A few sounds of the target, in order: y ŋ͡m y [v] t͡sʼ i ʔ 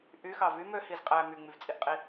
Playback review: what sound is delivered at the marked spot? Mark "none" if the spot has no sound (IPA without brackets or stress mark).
v